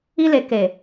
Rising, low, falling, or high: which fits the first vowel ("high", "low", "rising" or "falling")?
high